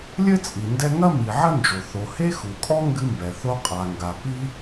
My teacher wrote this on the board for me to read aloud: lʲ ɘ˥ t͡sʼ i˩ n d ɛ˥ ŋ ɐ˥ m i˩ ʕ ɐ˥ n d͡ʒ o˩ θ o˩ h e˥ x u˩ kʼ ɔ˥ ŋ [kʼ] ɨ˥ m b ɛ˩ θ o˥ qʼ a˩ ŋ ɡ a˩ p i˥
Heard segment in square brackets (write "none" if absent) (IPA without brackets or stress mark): ɡ